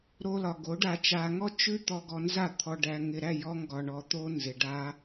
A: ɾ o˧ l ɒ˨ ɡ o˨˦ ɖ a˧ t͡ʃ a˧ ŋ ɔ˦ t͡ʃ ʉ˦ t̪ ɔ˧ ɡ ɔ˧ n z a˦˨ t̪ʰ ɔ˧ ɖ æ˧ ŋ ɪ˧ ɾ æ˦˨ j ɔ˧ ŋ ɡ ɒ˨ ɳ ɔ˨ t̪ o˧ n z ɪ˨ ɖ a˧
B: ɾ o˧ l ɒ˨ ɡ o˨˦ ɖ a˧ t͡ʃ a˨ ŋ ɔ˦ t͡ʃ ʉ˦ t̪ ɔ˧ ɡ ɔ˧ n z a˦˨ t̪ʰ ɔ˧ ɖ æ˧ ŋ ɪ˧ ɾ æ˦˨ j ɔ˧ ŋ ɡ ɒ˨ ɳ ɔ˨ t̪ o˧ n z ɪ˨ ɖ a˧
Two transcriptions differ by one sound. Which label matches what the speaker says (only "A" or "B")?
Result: A